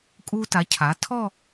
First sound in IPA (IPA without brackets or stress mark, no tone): kʼ